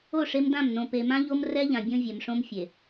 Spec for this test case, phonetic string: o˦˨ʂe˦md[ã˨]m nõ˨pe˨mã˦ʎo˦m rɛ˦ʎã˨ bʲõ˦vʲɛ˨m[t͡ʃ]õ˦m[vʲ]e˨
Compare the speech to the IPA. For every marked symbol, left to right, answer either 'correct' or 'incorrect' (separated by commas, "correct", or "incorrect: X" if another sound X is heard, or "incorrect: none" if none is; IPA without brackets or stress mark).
incorrect: ã˦˨, incorrect: ʂ, incorrect: fʲ